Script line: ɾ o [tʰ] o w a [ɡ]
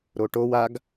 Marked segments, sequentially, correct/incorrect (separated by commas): incorrect, correct